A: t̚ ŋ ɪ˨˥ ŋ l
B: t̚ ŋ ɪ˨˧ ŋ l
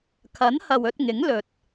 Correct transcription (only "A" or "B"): A